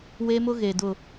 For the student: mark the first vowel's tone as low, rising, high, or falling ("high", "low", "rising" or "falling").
high